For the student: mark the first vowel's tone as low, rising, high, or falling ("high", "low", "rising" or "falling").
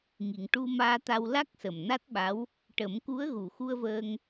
low